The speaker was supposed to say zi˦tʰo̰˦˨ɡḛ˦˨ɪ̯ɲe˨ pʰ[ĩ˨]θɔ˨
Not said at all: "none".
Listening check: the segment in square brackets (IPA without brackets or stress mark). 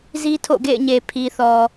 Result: i˨